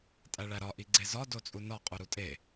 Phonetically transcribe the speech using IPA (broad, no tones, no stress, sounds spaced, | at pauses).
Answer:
tʼ æ ɭ æ ɾ ɒ ʔ i ɡ͡ǀ e z ɒ d o t͡sʼ u n ɒ qʼ u ɾ u tʼ e